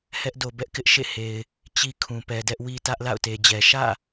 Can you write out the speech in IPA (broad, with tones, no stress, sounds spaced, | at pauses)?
h ɛ˦ ʔ d o˨ b ɛ˦ ʔ k ɪ˦ ʔ ʃ ḛ˦˨ h e˨ ɪ̯ | t͡ɕ i˦ kʰ ũ˨ p ɛ˨ d ɛ˦ ʔ w i˦ t ä˦ ʔ l a̰˦˨ ʊ̯ t e˨ d͡ʑ ɛ˨ ʃ ä̰˦˨